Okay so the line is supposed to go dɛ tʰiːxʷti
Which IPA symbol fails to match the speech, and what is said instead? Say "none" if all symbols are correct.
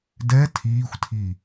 t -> tʰ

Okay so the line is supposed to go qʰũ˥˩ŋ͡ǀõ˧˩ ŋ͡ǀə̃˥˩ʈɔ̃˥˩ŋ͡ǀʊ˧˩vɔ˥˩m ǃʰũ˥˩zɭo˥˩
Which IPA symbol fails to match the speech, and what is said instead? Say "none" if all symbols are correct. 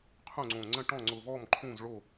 none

